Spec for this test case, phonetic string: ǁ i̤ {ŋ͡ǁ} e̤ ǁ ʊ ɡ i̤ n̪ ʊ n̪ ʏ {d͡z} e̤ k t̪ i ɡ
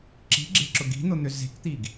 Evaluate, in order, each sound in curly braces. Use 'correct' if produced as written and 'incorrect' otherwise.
incorrect: ɡ͡ǁ, incorrect: z

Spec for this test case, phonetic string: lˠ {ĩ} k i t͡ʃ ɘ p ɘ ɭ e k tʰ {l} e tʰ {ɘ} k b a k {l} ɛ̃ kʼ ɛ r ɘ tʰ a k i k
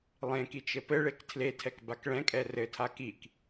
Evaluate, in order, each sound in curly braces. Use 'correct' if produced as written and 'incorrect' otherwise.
incorrect: ẽ, correct, incorrect: ɛ, incorrect: ɭ

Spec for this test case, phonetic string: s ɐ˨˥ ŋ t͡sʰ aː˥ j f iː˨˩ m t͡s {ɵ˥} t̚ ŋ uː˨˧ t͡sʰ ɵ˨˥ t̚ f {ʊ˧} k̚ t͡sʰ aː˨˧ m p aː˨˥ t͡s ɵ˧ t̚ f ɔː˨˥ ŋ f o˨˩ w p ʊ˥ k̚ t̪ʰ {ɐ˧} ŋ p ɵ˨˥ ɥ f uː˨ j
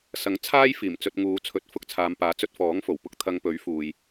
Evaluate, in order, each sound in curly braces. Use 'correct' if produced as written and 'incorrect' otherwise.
incorrect: ɵ˧, correct, correct

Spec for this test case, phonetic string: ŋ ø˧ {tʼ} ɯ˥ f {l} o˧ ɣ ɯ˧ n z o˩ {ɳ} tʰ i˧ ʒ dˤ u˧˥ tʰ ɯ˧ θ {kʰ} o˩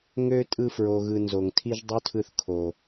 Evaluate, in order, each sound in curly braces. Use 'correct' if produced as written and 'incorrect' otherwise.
correct, incorrect: ɹ, incorrect: ŋ, correct

